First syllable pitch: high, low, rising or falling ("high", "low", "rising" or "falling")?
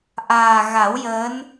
low